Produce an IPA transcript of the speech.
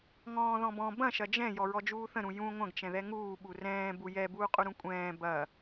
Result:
ŋɔ̃ːðɔ̃bɔ̃ bɐ̃ ʃɐd͡ʒɛ̃ jɔɹɔd͡ʒuːθə̃ ɾũjũ ŋʷɐ̃ɡ t͡ʃɛ̃ðɛŋuː ɓurɛ̃ː bujɛ buːqʼuɾũkʷʼɛ̃ː bɐ

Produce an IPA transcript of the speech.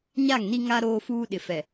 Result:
ɲa˦˨ŋni˦ ŋa˦ ɾoː˦fuː˦ ɗɪ˨fɛ˨

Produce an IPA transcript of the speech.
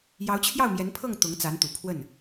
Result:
jɑ˧˥ʊ̯t͡ɕʰjɑ˥˩ʊ̯mjɛ˧˥npʰɤ˥˩ŋ t̪ʊ˧˥ŋt͡sa˧˥nt̪u˨˩ pʰwə˥˩n

